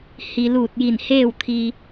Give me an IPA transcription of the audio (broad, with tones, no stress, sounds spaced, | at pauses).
h i˩ l uː˧˩ t̚ j i˧˩ n h eː˥˨ w t̪ʰ i˧